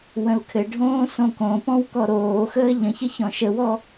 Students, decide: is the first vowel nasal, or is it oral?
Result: nasal